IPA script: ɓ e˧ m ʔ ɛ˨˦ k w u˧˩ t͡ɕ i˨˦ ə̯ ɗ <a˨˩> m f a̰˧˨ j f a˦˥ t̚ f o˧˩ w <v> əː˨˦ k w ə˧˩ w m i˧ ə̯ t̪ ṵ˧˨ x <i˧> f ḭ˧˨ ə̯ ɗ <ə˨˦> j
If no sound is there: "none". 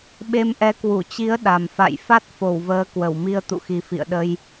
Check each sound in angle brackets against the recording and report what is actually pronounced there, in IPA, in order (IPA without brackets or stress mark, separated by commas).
a˨˩, v, i˨˩, ə˧